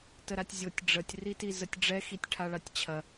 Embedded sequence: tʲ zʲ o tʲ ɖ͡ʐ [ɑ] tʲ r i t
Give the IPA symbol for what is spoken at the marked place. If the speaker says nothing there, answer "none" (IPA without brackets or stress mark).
ə